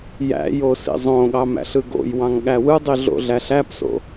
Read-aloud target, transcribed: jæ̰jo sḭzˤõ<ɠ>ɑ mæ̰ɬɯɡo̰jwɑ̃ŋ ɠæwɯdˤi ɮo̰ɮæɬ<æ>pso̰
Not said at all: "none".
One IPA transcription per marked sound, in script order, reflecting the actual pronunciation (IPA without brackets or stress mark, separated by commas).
ɠ, æ